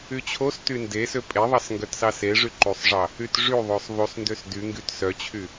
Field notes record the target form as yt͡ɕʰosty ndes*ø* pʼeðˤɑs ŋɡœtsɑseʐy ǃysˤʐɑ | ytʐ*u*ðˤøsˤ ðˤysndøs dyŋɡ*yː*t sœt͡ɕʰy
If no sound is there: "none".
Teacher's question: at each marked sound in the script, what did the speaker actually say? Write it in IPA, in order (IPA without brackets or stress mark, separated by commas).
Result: ø, y, y